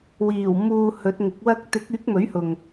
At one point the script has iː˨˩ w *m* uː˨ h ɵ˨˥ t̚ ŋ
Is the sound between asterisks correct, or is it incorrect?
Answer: correct